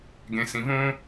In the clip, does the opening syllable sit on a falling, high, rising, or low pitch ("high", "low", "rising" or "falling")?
low